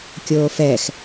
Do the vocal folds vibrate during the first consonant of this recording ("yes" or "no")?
no